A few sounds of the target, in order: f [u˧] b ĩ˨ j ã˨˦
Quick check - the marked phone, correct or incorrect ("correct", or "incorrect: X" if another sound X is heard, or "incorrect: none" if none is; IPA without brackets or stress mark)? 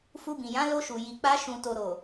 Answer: correct